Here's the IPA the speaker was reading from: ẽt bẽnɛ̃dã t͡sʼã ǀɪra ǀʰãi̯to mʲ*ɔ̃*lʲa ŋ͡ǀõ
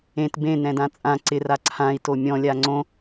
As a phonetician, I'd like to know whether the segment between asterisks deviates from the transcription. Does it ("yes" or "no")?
no